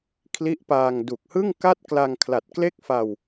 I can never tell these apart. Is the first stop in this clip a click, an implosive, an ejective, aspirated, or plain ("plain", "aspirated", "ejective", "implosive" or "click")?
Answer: aspirated